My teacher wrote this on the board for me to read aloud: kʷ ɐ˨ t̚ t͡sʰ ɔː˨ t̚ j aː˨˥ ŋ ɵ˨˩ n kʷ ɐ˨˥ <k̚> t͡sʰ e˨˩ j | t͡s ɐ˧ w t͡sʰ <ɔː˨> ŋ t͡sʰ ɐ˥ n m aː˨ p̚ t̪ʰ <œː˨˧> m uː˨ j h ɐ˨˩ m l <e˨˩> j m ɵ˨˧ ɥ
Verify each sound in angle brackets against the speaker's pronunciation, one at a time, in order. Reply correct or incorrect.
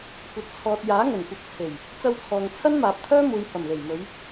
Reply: correct, correct, incorrect, correct

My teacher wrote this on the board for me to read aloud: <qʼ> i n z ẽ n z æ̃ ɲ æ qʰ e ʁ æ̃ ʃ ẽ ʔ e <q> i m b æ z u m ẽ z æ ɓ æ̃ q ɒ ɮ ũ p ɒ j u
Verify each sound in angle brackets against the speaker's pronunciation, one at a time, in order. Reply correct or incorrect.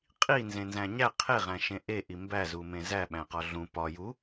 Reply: correct, incorrect

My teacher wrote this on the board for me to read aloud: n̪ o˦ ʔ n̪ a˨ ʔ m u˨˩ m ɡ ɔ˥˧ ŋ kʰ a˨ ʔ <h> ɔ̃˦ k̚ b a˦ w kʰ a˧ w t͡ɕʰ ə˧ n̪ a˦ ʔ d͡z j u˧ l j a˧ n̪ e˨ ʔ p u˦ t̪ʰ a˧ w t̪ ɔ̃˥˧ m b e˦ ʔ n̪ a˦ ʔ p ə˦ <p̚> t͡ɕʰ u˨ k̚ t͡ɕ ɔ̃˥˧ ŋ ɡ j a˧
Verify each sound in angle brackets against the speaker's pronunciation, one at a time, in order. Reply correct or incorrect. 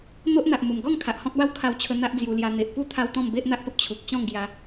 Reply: correct, correct

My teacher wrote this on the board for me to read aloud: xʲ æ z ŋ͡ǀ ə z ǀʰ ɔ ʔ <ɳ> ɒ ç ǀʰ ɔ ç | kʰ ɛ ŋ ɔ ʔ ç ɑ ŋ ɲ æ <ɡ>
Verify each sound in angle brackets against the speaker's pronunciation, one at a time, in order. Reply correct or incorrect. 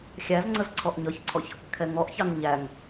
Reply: incorrect, incorrect

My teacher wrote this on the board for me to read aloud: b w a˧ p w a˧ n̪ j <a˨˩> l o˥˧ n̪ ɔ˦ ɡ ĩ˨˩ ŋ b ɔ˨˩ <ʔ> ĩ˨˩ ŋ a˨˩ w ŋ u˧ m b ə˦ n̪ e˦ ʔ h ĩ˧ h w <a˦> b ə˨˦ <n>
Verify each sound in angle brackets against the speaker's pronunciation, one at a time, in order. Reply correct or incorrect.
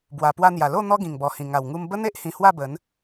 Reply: correct, incorrect, incorrect, correct

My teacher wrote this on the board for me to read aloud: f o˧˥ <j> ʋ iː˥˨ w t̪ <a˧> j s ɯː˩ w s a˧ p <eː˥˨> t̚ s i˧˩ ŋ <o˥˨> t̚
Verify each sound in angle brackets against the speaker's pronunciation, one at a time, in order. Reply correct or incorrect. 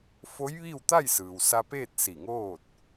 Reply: correct, incorrect, correct, incorrect

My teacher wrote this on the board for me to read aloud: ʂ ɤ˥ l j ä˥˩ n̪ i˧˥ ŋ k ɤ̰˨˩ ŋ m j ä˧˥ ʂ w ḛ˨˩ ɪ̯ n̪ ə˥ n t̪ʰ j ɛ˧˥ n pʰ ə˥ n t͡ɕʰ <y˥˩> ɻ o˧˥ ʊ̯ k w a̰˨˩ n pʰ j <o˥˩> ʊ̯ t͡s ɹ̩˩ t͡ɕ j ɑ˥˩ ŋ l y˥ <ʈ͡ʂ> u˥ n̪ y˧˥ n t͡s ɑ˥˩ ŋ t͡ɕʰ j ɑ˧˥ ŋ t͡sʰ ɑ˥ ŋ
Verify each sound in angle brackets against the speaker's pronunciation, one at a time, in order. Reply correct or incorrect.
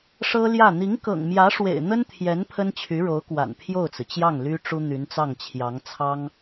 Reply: incorrect, correct, correct

